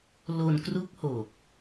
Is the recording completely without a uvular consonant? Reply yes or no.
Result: yes